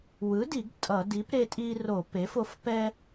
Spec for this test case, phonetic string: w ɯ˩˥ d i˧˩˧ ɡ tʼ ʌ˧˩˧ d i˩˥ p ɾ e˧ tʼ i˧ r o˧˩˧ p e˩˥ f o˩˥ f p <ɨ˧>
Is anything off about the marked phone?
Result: yes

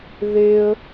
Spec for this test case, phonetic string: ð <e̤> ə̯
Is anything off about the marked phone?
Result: yes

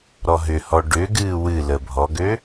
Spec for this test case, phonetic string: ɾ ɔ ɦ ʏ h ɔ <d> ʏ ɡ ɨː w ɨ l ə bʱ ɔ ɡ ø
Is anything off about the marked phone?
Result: yes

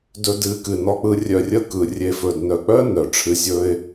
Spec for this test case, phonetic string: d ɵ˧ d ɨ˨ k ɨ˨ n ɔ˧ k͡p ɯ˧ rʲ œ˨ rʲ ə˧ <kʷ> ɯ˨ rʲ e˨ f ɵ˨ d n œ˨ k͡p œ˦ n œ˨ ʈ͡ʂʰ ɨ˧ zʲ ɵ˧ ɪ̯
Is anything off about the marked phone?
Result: yes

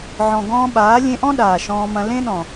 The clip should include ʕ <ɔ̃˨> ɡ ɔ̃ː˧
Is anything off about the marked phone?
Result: no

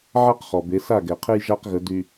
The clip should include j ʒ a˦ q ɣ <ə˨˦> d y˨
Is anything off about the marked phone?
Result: no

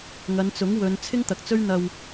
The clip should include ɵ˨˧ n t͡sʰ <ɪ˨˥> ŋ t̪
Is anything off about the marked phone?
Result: yes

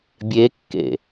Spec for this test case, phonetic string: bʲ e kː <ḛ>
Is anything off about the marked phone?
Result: no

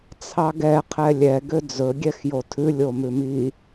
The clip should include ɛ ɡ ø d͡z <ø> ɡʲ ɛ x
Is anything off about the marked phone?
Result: yes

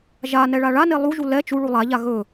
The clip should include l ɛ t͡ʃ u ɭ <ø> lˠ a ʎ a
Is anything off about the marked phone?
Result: yes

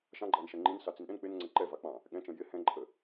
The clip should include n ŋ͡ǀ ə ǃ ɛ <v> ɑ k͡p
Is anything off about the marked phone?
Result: no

